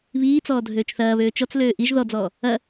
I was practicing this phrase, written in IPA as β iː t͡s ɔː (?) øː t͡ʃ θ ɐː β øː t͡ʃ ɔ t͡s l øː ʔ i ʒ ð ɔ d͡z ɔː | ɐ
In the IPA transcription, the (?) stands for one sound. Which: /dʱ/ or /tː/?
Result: dʱ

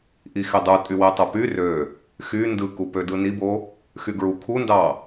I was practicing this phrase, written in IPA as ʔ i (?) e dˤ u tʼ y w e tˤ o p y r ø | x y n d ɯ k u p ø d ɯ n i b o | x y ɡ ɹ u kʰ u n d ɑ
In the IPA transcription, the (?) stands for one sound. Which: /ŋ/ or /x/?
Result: x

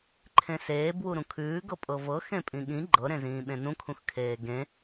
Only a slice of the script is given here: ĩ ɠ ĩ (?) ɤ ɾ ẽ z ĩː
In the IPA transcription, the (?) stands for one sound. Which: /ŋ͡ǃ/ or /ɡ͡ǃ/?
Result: ɡ͡ǃ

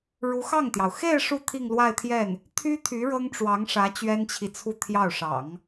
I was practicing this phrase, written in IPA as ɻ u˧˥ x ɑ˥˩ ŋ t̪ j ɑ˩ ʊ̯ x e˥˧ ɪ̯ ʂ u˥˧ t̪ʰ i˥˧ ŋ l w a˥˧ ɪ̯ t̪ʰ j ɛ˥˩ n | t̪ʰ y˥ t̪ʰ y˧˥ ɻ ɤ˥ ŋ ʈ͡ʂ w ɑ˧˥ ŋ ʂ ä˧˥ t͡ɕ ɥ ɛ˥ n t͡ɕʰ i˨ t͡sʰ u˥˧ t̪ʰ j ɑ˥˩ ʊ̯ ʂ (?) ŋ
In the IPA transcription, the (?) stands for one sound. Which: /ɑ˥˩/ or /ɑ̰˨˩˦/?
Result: ɑ̰˨˩˦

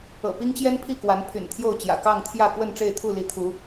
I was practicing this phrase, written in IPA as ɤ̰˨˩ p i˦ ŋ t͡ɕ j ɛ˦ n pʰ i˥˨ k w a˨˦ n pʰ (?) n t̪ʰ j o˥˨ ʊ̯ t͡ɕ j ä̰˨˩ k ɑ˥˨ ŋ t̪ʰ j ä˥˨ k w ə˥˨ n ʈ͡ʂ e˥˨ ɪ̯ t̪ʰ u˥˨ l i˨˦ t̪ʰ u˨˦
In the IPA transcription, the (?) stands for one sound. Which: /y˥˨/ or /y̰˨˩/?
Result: y̰˨˩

